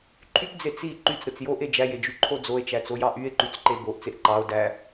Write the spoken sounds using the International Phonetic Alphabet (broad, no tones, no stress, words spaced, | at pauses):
ǃʰypd͡ze t͡si ǃyt͡sɾɯt͡s joʔe d͡ʒæjed͡ʒyǃʰo d͡zoe̯t͡ʃæt͡sojɑ ʔye̯ǃyt͡sǃe boʔt͡seʔ ǃɑo̯ dæ